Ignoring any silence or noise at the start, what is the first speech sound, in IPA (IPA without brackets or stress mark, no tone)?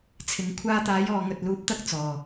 t͡sʰ